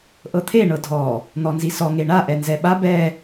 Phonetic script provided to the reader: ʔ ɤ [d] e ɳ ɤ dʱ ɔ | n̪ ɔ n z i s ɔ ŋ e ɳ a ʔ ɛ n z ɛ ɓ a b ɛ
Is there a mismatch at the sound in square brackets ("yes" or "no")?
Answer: yes